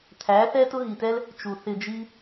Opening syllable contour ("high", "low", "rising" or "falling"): rising